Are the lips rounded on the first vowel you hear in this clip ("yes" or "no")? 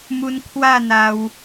yes